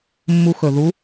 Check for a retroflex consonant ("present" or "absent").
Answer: absent